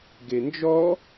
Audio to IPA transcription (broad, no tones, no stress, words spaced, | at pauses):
ɡend͡ʒɔ